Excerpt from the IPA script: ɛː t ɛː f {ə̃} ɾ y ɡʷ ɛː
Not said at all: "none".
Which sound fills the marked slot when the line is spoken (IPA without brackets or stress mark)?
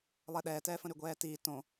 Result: ə̃